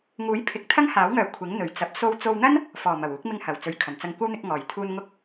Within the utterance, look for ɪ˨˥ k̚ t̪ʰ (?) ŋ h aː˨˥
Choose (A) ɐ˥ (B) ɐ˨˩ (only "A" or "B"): A